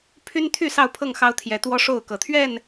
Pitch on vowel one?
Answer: high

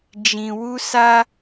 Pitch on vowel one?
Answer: low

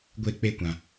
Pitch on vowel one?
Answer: falling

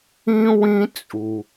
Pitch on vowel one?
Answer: high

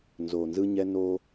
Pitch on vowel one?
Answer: low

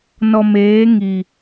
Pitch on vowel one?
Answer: low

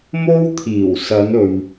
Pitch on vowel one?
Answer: high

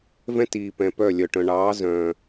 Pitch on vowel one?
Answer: high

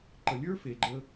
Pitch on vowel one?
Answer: low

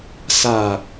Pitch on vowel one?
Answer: low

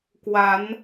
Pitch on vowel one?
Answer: rising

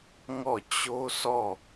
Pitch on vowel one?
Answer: falling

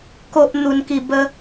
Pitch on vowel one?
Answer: high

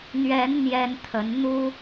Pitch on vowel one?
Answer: rising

